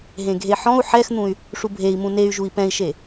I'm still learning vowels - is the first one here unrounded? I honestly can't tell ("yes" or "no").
yes